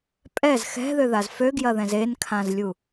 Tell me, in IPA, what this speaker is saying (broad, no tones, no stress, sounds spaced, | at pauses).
pʼ ɛ z x ɛ̤ ð ø ð a z f ø ɡ j ɐ ð ɛ̃ z e n kʰ ã z lʲ u